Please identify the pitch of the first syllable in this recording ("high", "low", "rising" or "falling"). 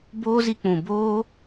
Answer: high